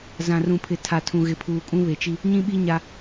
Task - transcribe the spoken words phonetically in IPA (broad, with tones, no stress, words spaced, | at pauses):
zã˨rũ˨pʰɪ˨ tʰa˨tʰũ˨ ɣɪ˨pʰuː˨kʼũ˦ βe˨t͡ʃi˦ | ɲĩ˦ɓi˦ ɲa˦